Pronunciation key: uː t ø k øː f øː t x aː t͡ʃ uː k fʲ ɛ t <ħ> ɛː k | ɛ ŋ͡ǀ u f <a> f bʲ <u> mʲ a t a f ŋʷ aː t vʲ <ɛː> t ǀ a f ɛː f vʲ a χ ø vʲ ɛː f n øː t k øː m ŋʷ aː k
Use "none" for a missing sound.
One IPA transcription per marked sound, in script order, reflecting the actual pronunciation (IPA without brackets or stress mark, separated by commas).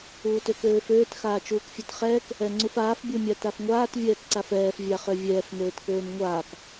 χ, aː, u, ɛː